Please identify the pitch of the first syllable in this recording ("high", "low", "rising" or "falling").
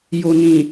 low